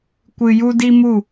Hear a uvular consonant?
no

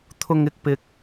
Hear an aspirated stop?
yes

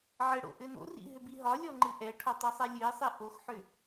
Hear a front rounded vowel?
yes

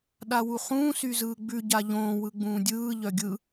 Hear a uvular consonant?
yes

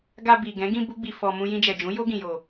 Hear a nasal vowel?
yes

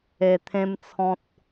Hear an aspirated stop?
yes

